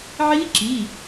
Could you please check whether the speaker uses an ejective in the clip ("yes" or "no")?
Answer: no